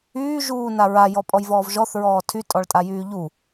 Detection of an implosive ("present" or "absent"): absent